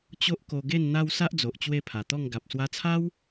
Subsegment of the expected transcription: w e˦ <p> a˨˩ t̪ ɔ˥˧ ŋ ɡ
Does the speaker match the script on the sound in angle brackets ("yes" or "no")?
no